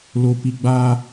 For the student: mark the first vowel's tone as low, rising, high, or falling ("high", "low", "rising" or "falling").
low